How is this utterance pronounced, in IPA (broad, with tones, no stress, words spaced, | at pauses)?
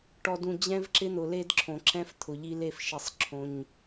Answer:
ʈɔ˨dũ˨ d͡ʑɛ̃˦vǁɪ˦n̪ʊ˨ le˦dǁʰõ˨ǁʰɛ̃˦f t̪ʰʊ˨ʎi˦le˦f ʃi˨sˤ ǁʰõ˦ɲ